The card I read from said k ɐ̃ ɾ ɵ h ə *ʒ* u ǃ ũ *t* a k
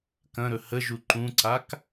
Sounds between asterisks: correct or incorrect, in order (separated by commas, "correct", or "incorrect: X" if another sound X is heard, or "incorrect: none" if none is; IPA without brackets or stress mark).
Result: correct, incorrect: ǀ